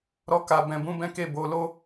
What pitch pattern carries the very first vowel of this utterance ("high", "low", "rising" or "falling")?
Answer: high